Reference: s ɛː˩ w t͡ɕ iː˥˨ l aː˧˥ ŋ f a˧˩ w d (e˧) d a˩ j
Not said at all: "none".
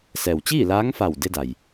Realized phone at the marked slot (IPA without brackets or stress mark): e˧